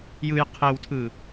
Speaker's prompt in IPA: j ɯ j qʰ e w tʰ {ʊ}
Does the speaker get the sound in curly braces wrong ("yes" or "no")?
yes